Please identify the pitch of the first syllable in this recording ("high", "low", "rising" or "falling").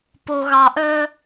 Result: low